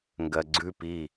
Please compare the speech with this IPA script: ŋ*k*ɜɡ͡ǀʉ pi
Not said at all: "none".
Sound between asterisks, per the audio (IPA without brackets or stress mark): ɡ